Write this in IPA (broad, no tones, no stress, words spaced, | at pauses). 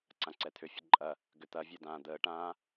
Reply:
ǀãǀɛt̪ʰʏ fʲəǃʼɐ | ɡʏt̪ɐvʲœdãː d̪əːʈãː